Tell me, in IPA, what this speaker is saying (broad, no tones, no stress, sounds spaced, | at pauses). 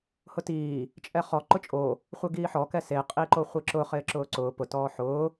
h ʊ t iː | t͡ʃʼ ɛ χ ɔ ǃ ʊ t͡ʃʼ o | χʷ ɪ ɡ iː ħ ɔ k ɛ s e qʼ i ǃ o χʷ i ǁ ʊ χ ɪː ǁ ʊː ǀ ʊː p ʊ t ɔː ħ ʊː